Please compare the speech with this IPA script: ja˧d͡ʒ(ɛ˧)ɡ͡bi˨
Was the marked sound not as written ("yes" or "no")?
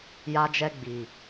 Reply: no